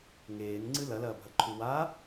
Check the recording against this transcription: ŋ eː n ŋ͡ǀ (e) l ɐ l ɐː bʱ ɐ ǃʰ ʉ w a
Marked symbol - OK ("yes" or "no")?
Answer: no